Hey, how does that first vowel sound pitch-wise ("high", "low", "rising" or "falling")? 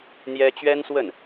high